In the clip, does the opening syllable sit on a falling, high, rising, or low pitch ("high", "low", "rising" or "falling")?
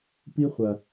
high